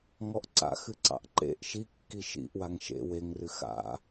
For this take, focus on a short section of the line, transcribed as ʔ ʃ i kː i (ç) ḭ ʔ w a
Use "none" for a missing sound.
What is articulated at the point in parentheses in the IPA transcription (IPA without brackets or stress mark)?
ʃ